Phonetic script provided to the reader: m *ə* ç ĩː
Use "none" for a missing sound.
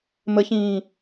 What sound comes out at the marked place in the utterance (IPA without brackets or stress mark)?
ə